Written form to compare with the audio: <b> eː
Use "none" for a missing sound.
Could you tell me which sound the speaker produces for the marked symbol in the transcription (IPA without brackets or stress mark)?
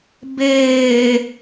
b